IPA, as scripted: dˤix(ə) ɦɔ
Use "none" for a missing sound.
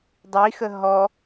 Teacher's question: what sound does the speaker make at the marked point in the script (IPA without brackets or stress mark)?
ə